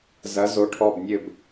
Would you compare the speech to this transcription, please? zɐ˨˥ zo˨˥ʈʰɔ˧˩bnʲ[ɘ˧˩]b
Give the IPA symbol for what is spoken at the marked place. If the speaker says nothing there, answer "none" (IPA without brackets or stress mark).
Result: ɘ˧˩